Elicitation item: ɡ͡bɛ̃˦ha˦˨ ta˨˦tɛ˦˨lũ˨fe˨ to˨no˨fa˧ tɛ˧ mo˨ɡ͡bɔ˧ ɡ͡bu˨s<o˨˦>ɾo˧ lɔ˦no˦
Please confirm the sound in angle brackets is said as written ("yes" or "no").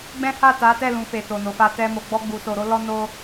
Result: no